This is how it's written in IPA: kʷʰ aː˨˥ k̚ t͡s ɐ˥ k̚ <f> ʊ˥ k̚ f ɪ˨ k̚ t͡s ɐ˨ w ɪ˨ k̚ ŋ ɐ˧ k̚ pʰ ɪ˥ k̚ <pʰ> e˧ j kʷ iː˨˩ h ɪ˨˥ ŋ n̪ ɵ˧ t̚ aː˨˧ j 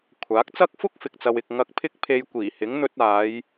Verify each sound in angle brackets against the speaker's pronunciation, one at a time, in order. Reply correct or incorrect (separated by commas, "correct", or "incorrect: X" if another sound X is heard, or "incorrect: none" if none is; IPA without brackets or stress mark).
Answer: correct, correct